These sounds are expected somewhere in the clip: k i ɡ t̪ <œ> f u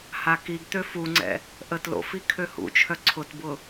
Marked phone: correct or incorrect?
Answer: incorrect: ø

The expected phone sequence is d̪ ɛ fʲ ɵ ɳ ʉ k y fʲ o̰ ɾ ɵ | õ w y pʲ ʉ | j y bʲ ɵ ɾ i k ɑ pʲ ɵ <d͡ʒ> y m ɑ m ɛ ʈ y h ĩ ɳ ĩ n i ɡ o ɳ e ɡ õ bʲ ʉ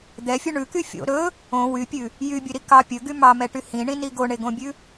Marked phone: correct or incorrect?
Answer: incorrect: ɡ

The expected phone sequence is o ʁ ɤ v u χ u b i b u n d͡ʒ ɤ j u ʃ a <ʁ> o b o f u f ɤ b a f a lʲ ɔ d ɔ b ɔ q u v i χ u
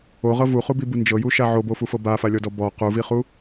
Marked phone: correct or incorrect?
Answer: incorrect: ʕ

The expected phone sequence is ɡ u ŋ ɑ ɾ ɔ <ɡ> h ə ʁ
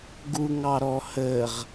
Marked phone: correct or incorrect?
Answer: incorrect: none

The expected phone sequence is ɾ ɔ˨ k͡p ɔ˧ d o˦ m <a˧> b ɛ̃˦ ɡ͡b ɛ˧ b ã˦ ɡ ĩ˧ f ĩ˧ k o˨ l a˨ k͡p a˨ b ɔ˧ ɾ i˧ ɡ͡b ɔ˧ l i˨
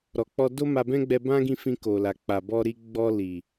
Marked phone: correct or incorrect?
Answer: correct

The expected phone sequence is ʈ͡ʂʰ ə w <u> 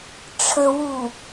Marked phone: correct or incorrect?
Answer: correct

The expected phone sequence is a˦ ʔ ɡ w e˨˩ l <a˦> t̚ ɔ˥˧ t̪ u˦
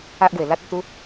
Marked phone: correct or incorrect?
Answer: correct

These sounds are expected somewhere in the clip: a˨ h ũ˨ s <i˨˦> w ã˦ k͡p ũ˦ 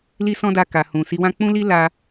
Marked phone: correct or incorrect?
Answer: correct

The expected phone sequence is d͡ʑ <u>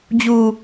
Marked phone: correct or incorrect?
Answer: correct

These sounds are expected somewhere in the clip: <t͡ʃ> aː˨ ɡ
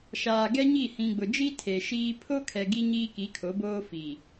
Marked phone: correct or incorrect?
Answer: incorrect: ʃ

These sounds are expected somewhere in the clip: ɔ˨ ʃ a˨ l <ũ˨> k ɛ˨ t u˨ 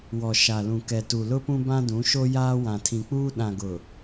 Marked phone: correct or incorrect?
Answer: correct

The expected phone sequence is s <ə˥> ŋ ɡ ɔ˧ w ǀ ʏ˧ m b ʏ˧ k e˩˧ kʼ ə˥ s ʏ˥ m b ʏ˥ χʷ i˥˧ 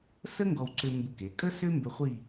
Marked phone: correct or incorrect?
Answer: correct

